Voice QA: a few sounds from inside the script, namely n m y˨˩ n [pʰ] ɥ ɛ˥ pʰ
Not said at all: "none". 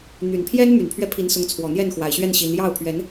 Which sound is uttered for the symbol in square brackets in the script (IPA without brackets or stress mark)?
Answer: pʰ